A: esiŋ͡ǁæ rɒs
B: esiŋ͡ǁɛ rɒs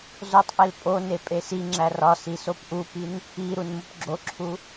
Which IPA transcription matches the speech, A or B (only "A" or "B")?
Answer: A